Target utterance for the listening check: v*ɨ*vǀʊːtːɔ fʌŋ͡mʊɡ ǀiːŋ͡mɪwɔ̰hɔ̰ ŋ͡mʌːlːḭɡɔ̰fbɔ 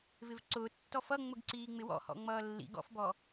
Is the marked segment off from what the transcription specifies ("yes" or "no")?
yes